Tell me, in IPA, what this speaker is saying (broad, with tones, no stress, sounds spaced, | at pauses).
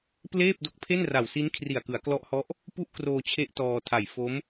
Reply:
p l eː˥˩ p̚ d o˦˥ k̚ pʰ e˥˩ n r a˨˩ w s i˦˥ n kʰ r i˨˩ a̯ k ɯ˩˦ a̯ k l ɔ˦˥ ʔ h ɔ˦˥ ʔ | p u˥˩ ʔ k r oː˧ t͡ɕʰ e˦˥ ʔ t ɔː˧ tʰ a˨˩ j f o˦˥ m